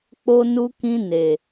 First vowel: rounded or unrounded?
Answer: rounded